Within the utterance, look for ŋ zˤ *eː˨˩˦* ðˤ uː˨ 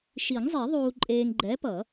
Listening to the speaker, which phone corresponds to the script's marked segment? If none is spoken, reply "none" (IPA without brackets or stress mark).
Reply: e˨˩˦